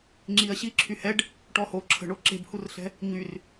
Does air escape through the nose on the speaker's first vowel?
no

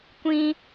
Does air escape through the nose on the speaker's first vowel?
yes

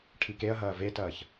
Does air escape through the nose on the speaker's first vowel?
no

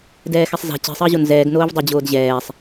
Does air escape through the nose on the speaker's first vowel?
no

